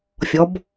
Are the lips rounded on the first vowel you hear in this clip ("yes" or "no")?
yes